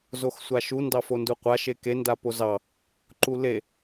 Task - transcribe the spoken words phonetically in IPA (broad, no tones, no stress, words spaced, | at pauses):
zoxsʷaʃu ndɑfonduqʷa ʃeke ndapozɑ | ǃule